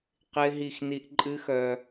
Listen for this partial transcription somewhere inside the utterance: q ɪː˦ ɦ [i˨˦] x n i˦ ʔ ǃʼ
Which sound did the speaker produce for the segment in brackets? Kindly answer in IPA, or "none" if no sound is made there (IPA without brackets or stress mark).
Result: i˦˨